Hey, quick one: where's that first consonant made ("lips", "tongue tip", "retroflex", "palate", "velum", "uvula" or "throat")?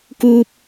velum